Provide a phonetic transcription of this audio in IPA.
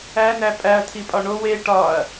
ænæ pʼæɐ̯tʰipʼɒ ɳow e ʈɒɐ̯

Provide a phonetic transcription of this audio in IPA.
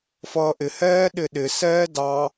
fʌːʔɪhɛː ɗɪɗɪsɛː dɑ

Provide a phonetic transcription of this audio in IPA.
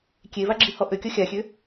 kʲevaɡ͡ǁihɔ ʔøkʲɔ xʲaxʲø

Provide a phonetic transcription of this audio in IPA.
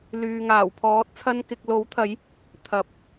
lyː˨ŋaː˨˩wpʰɔː˨˥t̚ t͡sʰɐ˧nkɪ˨k̚lo˨˥wt̪ʰɐ˨˥j | t̪ʰɐ˨p̚

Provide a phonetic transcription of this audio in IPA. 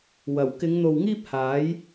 wɐ˨˩wkɪ˨˧ŋ n̪o˨wŋiː˥p̚haː˨˥j

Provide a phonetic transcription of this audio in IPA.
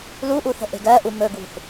luʔuθə̤ ʔe̤ɡɜʔu mɵɡwṳθ

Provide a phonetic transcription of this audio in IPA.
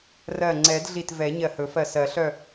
rɜ˧˩ŋ͡ǀɛ˨˩˦dɮi˧˩t vɛ˨˩˦ ɲɜ˧˩hɵ˨˩˦fɜ˧˩sɜ˨˩˦ ɬœ˧˩

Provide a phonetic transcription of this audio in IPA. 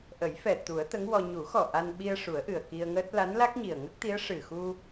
ʔə˨˩˦jfɛ˨˩ t̪u˨˩˦ə̯t̪ə˧˥ŋwɔ˧ ɲu˨˩˦xɔ˨˩ ʔa˧n ɓi˧ə̯ʂu˨˩˦ə̯ ʔɨ˨˩ə̯ki˧ə̯ŋəː˦˥t̚ la˧˥nla˦˥k̚ɲi˨˩ə̯ ŋə˦˥k̚t̪i˧˥ə̯ ʂɨ˨˩xu˧

